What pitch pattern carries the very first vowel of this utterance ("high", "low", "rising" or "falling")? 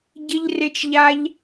high